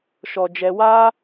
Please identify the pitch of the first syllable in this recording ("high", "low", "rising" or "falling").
low